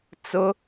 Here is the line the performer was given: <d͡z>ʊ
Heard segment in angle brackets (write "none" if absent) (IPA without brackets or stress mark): t͡s